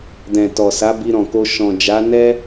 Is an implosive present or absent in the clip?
absent